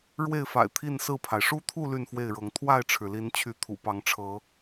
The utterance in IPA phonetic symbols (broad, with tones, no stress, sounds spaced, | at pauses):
ɻ w e˥˨ ɪ̯ f a̰˨˩ ɪ̯ t̪ʰ i˥˨ n s ɹ̩˥˨ pʰ a˩ ɪ̯ ʂ u˦ t̪ʰ u˥˨ l y˥˨ n f w e˥˨ ɪ̯ ɻ ɤ˨˦ ŋ t̪ʰ w a˥˨ ɪ̯ ʈ͡ʂʰ ɻ̩˩ l i˨˦ n t͡ɕʰ y˨˦ t̪ʰ ṵ˨˩ p ɑ˨˦ ŋ ʈ͡ʂʰ ɤ˨˦